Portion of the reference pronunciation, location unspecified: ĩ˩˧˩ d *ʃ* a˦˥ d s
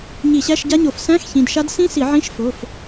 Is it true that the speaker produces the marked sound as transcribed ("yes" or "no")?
yes